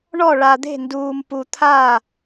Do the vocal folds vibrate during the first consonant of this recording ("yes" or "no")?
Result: yes